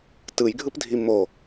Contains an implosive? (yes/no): no